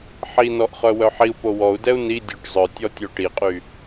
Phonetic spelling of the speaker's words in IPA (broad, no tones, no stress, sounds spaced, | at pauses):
ħ i n ɔ ʔ χ œ w œ ħ i u̯ p o w ɔ u̯ d ɛ u̯ n i dʲ o ʈ zˤ œ tʲ ɔ tʲ o ʈ i qʼ y